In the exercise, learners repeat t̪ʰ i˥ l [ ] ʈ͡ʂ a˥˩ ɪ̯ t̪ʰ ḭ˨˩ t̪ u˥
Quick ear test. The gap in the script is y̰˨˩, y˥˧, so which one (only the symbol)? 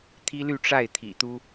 y˥˧